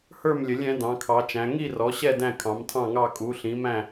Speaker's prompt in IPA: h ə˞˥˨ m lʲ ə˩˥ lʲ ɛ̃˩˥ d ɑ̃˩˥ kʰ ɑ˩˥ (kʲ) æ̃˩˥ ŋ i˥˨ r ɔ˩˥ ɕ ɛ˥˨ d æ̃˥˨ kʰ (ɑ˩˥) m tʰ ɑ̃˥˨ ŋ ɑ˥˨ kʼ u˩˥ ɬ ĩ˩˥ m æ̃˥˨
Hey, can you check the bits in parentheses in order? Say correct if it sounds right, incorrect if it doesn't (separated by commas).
incorrect, incorrect